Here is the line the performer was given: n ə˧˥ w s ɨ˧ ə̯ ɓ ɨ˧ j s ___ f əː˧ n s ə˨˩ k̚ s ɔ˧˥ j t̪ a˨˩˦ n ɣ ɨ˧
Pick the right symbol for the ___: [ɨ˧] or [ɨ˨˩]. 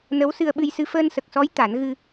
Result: ɨ˧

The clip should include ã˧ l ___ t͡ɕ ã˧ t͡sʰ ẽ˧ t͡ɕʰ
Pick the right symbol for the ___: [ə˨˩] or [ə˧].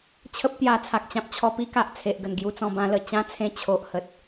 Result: ə˧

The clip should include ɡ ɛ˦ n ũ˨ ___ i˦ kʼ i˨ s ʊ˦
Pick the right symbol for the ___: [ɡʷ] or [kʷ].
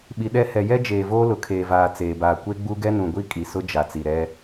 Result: ɡʷ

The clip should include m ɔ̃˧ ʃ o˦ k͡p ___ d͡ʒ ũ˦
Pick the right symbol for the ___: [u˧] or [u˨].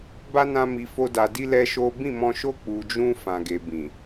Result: u˧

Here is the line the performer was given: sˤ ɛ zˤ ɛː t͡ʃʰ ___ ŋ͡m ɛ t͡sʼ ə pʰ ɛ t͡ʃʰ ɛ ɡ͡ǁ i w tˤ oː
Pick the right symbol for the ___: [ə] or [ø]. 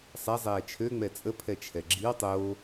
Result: ø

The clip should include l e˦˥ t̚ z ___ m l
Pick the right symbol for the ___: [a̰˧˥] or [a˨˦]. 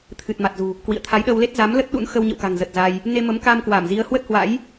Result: a˨˦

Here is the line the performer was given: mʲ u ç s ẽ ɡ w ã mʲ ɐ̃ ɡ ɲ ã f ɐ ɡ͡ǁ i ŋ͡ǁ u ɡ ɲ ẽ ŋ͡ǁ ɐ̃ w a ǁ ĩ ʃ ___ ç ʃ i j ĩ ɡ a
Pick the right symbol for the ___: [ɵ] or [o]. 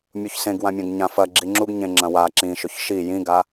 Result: ɵ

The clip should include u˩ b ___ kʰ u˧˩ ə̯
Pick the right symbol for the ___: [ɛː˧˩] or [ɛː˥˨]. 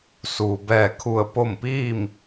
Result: ɛː˧˩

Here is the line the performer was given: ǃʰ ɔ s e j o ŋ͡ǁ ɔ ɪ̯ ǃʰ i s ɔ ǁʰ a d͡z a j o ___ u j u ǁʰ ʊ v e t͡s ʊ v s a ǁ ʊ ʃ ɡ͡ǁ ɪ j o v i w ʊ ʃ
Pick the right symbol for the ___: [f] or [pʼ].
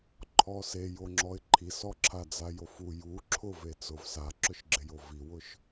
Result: f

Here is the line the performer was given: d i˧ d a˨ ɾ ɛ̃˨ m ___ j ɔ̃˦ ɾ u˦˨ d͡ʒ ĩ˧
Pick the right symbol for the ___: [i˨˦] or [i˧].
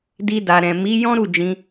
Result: i˨˦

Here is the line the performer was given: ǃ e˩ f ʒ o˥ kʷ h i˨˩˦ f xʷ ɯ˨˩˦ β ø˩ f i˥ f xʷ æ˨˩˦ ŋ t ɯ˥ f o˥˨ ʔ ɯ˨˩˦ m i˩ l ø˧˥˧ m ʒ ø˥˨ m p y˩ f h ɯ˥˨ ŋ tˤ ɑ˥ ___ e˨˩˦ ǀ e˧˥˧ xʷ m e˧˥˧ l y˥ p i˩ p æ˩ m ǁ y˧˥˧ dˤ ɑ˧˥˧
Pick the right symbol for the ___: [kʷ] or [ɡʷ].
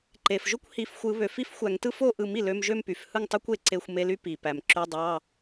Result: kʷ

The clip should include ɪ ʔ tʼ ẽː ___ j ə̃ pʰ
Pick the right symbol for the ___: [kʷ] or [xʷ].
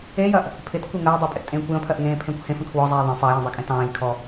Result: kʷ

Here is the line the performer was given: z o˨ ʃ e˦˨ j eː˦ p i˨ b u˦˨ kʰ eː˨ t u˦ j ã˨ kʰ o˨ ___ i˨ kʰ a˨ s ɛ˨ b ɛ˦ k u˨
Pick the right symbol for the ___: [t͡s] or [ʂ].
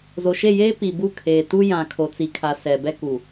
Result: t͡s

